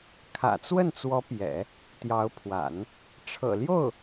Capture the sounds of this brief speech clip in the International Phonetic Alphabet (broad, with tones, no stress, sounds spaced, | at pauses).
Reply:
kʰ ä̰˨˩ t͡s w ə˥˩ n t͡s w ɔ˧˥ p j ɛ̰˨˩˦ | t̪ j ɑ˧˥ ʊ̯ pʰ w a̰˨˩˦ n | ʈ͡ʂʰ ɤ̰˨˩ l j o˥˩ ʊ̯